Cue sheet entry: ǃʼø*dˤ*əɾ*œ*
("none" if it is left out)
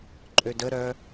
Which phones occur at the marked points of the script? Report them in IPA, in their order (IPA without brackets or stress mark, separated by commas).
d, œ